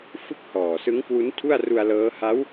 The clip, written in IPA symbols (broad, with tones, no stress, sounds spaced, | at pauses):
f ɯ˥˩ k̚ h ɔː˨˩ s ɯ˦˥ ŋ k w u˦˥ n tʰ u˥˩ a̯ r u˧ a̯ l ɤː˦˥ h a˦˥ w